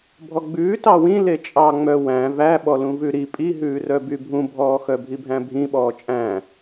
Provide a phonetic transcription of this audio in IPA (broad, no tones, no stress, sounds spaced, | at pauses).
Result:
bʱ ɔ ɡ͡b ʉː t ɑ w ĩ l e t͡ʃʼ ɑ ŋ͡m œ w æ̃ v æ ɓ ɔ l ũ v ʉ ɾ i pʼ i ɦ ʉː r œ b y bʱ ũ bʱ ɔː x œ bʱ i bʱ æ̃ bʱ ĩ ɓ ɔː t͡ʃʼ æ̃